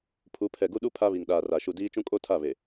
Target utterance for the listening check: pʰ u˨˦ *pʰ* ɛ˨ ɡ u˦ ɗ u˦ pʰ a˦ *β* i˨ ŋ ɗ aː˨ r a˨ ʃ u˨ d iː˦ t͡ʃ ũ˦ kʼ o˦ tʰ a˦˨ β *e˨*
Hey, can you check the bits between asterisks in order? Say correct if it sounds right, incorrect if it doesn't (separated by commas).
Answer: correct, correct, correct